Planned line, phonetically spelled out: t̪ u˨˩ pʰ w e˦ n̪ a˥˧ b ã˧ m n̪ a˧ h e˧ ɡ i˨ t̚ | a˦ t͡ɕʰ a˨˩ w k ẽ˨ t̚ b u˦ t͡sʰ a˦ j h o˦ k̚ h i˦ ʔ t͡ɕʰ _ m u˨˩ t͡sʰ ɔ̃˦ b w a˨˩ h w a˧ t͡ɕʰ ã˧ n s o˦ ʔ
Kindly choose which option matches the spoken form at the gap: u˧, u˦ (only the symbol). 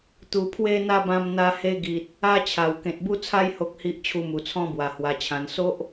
u˧